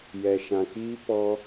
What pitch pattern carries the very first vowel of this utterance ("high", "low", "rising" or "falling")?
low